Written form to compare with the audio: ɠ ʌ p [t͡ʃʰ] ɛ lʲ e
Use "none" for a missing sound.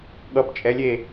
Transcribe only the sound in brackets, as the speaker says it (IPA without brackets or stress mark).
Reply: t͡ʃʼ